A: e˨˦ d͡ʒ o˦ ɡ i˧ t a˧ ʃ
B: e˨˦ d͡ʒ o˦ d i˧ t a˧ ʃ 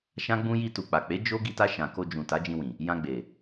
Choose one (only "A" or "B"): A